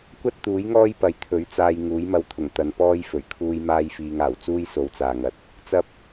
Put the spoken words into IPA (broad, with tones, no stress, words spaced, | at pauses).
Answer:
kʷɐ˥t̚ t̪uː˨˥jŋɔː˥j pɐ˨jt̪ʰɵ˨˥ɥt͡saː˧j ŋuː˨˥jmɐ˧wt̪ʰʊ˨˩ŋ t̪ɐ˨npɔː˥jfɵ˨˩ɥ kʰuː˧j maː˥jfiː˧ŋaː˨˩w t͡suː˥jso˨˧wt͡saː˨ŋɐ˨t̚ | t͡sɐ˥p̚